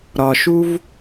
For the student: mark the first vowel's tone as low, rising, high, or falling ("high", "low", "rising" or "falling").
low